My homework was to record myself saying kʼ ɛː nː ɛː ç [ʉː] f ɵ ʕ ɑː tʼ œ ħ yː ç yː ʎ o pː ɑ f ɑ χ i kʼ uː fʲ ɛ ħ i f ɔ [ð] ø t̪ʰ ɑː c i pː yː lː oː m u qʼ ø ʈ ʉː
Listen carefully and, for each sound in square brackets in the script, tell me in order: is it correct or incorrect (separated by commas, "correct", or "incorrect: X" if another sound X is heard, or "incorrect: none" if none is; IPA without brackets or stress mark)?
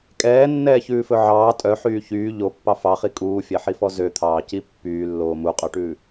correct, incorrect: z